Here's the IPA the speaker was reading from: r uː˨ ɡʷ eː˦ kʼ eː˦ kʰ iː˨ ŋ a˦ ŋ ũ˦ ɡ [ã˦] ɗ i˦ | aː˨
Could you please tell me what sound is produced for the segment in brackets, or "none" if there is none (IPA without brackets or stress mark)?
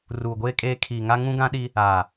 ã˦